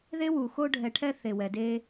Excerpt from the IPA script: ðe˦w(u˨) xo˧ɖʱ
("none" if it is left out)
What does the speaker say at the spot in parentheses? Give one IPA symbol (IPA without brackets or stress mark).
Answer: u˨